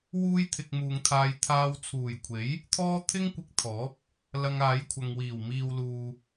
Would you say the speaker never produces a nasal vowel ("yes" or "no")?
yes